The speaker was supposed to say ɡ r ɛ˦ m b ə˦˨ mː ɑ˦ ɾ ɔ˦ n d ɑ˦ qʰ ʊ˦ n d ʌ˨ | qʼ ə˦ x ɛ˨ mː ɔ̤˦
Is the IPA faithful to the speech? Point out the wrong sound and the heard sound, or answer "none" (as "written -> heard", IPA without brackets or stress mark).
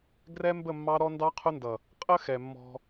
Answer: none